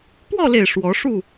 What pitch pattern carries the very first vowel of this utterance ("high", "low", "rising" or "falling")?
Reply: falling